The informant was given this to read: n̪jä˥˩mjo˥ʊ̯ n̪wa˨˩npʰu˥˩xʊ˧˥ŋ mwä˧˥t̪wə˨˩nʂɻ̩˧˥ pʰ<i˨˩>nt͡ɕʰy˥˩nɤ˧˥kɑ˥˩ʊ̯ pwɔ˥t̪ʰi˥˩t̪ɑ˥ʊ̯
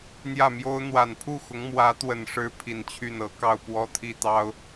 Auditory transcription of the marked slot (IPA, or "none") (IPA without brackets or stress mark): i˨˩